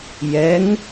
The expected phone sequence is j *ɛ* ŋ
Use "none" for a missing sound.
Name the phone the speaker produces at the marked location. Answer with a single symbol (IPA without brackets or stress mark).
ɛ